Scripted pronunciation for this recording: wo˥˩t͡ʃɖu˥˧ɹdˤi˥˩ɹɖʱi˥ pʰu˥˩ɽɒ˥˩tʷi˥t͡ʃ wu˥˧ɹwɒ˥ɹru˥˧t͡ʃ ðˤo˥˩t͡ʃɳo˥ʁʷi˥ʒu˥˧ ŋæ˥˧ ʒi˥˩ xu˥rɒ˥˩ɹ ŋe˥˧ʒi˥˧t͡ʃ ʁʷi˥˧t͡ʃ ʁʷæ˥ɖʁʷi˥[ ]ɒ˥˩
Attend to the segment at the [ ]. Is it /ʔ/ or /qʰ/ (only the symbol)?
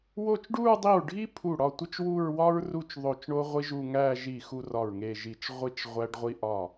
ʔ